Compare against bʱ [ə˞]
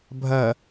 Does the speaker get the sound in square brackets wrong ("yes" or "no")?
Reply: yes